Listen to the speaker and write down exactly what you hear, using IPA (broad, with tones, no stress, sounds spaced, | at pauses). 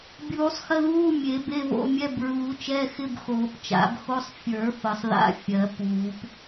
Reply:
bʲ uː˨˩˦ sˤ x ə˧˥˧ ð uː˧˥˧ mʲ e˨˩˦ b e˧˥˧ v o̰˧˥˧ mʲ ɛ˧˥˧ b ɹ uː˨˩˦ t͡ʃ ɛ˧˥˧ x ɪ˧˥˧ b x oː˨˩˦ p t͡ʃ a̰˨˩˦ b x o˧˥˧ sˤ fʲ ə˞˨˩˦ f ə˨˩˦ sˤ ð a̰˧˥˧ fʲ ɜ˨˩˦ p uː˨˩˦ p